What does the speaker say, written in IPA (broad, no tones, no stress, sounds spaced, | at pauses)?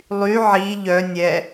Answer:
lˠ y ʕ i ʎ œ nʲ ɛ